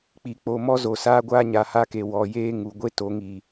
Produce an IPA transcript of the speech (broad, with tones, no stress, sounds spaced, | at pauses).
k͡p i˨ k͡p o˨ m ɔ˦ z o˨ s aː˦ ɡʷ aː˦ ɲ a˨ h a˦ k e˨ w ɔ˨ j eː˦ ŋ u˨ ɡʷ e˦ t o˨˦ ŋ i˨